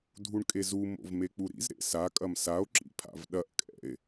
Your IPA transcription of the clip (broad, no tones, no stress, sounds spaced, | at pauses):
dʱ u ɳ kʼ e z u m o̰ v m e k͡p u ɾ ḭ z ɾ ḛ s a kʼ ɐ m s a o̯ ǁ ḭ pʰ a̰ v ɗ ɐ ʔ kʼ ɛ̰ e̯